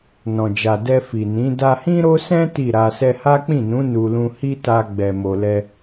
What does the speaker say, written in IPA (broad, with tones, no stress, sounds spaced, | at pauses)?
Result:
n ɔ̃˨ d͡ʒ a˨ d ɛ˧ f i˨ n ĩ˨˦ d a˧ h ĩ˦ ɾ o˦ s ɛ̃˦ t i˦˨ ɾ a˧ s ɛ˧ h a˦ k͡p ĩ˦˨ n ũ˨˦ n u˧ l ũ˦ h i˦ t a˧ ɡ͡b ɛ˨ m o˨ l ɛ˧